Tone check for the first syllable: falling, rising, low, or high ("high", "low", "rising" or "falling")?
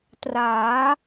rising